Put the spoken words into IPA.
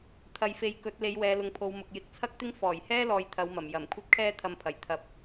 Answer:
t̪ʰɐ˨jfe˨j kɵ˨˥t̚ le˨˧jwɛː˨˧lʊ˨ŋpʰo˨˧w mʊ˨k̚jɪ˨˥k̚t͡sʰɐ˥k̚t̪ɪ˥ŋ fɔː˨˩jhɛː˥ lɔː˧jt̪ʰɐ˨˧wmɐ˨˩m jɐ˨˩m kʷʰɐ˥t̚kʰɛː˥ t̪ʰɐ˧mpʰɐ˨˩j t̪ʰɐ˨p̚

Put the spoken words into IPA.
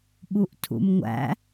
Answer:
ɓuʔtʰṵmŋʷæ̰

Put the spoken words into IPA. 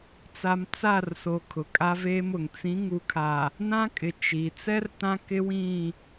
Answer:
t͡sa˨m t͡sa˦˨rso˨ kʰʊ˨kʼa˦veː˦mʊ˨ŋ t͡sĩ˨˦ŋu˨kʰa˨ | nã˦kʼɪ˨ t͡ʃi˨ t͡sɛ˦r tã˦ kɪ˦wĩ˦˨

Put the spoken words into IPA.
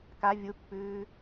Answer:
ka vʲupːʉː

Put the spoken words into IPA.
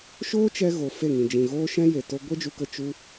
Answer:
ʃoː˦t͡ʃɛ˧ ɣo˨fe˦˨ŋĩ˨d͡ʒĩ˨ ɣoː˦ʃɛ̃˦je˨ to˧ ɡʷe˦d͡ʒu˧kə˧ t͡ʃu˧

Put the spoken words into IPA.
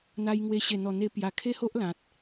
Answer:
n̪a˧jŋwe˧ ɕe˨˩n̪ɔ˨˩n̪e˧pja˨˩ kʰe˦ho˦ʔ lã˨t̚

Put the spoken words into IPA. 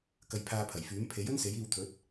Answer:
kɐ˧jpʰaː˧pʰɐ˨˩jfyː˨˥m pʰe˨˥jɵ˥n se˨˥jiː˧w t̪ʰɵ˨˥t̚

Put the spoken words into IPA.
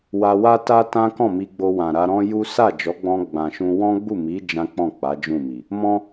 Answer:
wa˧wa˦ta˦ tã˦kɔ̃˦˨mi˧ɡ͡bo˧ wã˨ɾa˧ɾɔ̃˦ju˦ sa˦˨d͡ʒɔ˨˦ɡ͡bɔ̃˧ ɡ͡bã˨ʃũ˧ wɔ̃˦ɡ͡bu˦˨mi˨˦ d͡ʒã˦k͡pɔ̃˦˨k͡pa˨˦ d͡ʒũ˦˨mi˨ | mɔ̃˦

